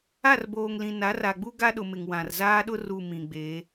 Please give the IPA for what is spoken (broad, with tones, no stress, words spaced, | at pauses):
a˦˨rboː˨ŋlĩ˨ na˨˦ra˨ɡ͡bu˦ ɡa˦ɗʊ˨mɪ˨ŋ wã˨rzaː˦ɗʊ˦ ru˨ mĩ˨ɡ͡beː˨˦